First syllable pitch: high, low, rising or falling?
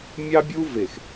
high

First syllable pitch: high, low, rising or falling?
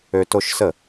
high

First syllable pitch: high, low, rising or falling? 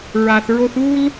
low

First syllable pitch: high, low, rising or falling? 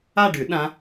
falling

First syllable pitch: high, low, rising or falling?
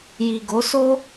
low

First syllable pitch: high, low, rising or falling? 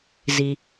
low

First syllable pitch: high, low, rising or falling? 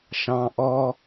low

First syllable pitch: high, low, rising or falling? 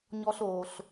high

